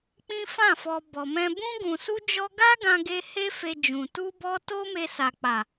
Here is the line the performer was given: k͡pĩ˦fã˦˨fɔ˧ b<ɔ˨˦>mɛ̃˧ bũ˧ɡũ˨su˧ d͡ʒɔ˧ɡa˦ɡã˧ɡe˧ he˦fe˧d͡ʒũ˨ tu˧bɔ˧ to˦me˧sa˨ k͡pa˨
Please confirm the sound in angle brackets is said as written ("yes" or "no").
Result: no